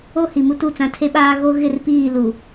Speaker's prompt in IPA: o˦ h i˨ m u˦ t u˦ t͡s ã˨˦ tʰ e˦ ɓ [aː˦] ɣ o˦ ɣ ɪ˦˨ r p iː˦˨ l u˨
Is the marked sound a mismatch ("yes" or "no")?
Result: no